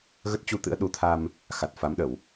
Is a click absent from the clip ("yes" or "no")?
yes